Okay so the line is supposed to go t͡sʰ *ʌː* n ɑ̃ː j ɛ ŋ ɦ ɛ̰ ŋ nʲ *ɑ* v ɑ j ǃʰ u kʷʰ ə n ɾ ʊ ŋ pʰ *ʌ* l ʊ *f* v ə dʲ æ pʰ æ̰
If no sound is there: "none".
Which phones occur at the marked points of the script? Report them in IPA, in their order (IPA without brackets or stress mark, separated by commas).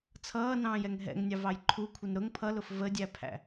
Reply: ʌː, ɑ, ʌ, f